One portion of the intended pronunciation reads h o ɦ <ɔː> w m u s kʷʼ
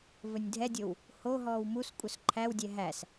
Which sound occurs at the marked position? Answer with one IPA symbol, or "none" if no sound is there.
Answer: ɔː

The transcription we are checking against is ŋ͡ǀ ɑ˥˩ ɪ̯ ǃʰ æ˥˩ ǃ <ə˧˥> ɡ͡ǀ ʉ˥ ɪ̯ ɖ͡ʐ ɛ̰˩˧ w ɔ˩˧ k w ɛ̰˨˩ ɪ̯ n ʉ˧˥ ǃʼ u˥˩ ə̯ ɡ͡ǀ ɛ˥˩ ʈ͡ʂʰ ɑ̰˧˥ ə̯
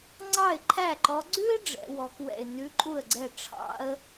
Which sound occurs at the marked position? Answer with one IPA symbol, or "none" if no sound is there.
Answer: ɔ˧˥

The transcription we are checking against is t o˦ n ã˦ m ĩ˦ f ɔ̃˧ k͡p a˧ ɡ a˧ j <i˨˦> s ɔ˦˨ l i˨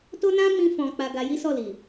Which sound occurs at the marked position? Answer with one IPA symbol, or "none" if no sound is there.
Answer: i˦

